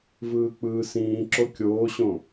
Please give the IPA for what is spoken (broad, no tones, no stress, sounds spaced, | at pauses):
v ɯː k͡p ɯː s ĩː ǁ o kʲ oː ɕ õ